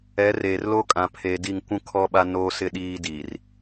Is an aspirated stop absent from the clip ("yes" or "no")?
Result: no